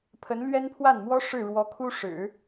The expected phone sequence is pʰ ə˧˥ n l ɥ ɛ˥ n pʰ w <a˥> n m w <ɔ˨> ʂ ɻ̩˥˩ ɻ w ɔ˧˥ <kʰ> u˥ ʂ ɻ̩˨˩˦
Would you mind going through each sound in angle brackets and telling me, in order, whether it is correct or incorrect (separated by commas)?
incorrect, incorrect, correct